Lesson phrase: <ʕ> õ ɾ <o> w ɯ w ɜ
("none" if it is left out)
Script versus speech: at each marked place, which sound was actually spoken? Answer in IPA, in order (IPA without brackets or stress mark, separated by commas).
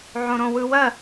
ʕ, õ